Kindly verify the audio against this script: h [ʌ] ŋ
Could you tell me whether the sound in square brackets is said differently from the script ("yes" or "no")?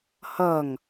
no